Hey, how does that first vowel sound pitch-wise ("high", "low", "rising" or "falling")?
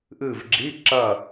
falling